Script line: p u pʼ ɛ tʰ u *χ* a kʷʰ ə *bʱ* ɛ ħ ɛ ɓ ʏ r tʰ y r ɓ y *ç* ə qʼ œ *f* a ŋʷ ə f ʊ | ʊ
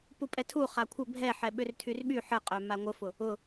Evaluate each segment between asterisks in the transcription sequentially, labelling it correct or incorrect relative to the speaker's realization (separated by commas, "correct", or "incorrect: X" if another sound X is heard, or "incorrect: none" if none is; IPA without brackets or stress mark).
correct, correct, incorrect: ħ, incorrect: m